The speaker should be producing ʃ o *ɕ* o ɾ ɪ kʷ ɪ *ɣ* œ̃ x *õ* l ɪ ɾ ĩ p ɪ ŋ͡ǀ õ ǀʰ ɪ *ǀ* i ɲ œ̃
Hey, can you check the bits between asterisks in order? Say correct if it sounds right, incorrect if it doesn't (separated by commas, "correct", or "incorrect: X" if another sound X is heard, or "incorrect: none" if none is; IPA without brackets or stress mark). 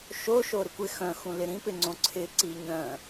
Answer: incorrect: ʃ, incorrect: x, incorrect: ũ, correct